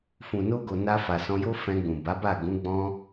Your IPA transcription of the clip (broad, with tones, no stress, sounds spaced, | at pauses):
f ũ˨ n o˧ ɡ o˨ n a˧ f a˨ s ɔ̃˧ j o˦ f ɛ̃˧ ɡ͡b ũ˨ b a˨˦ b a˦˨ ɡ ũ˨˦ ɡ͡b ɔ̃˦